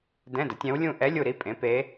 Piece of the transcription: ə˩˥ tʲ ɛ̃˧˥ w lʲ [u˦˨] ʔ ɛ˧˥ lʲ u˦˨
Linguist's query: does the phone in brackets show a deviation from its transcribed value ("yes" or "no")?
yes